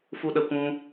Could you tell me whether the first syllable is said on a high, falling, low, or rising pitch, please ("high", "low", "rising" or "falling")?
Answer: high